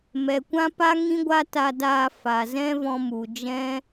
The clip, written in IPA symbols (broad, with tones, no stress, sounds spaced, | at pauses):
m ɛ˨ kʷ ã˦ p a˦ ŋ ĩ˦ ɡʷ a˦ t a˧ d aː˧ f a˨ z ɛ̃˦ v ɔ̃˧ m u˨ d͡ʒ ɛ̃˦